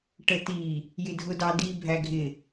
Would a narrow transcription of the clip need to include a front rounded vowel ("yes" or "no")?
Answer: no